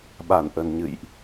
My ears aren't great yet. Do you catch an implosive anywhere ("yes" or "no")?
yes